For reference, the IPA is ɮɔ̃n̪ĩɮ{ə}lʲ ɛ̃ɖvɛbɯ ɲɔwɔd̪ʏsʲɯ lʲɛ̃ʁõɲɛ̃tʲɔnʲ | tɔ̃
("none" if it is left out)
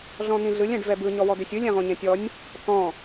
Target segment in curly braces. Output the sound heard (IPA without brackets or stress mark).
ɯ